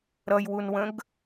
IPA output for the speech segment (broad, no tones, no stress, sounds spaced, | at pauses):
ɾ ʌ j w u n w ə̃ ɡ